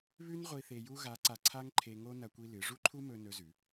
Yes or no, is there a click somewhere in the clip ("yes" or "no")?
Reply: yes